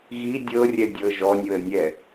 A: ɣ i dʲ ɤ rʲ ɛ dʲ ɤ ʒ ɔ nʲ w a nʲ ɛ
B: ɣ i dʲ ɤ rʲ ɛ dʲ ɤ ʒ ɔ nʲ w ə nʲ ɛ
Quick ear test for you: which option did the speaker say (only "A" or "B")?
B